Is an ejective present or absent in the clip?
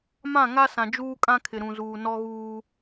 present